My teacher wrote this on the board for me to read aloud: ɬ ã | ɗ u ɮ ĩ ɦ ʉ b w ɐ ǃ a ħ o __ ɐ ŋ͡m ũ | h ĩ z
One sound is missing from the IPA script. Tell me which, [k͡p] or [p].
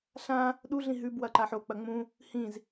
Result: k͡p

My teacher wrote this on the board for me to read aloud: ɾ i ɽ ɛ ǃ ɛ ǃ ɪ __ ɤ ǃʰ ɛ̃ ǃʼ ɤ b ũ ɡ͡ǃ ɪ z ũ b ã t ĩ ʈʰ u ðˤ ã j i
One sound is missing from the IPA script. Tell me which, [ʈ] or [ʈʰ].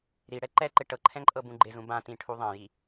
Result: ʈ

